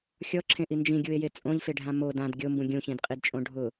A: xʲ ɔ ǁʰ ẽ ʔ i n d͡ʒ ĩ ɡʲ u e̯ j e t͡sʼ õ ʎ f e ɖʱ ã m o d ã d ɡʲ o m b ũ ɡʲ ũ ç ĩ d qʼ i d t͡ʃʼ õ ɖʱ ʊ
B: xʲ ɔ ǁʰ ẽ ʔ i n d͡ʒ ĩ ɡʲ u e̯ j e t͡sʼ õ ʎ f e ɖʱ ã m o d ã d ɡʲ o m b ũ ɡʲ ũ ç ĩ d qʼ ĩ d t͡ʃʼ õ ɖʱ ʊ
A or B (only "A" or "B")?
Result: A